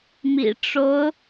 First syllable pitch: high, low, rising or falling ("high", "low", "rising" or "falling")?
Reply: low